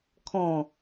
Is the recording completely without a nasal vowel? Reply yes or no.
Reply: no